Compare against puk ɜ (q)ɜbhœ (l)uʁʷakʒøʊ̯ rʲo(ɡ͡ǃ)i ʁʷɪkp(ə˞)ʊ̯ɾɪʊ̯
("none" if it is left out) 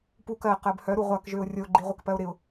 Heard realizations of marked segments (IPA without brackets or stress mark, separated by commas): q, ɾ, ɡ͡ǃ, ɜ